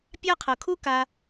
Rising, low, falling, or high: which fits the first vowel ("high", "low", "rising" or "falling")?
high